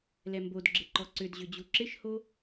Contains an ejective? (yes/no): no